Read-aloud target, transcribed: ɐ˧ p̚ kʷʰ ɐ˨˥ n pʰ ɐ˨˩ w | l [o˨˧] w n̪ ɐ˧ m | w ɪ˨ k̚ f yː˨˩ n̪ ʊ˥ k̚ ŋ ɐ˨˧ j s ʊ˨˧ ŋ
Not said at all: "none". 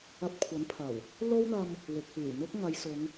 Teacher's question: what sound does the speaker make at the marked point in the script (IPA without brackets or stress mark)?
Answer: o˥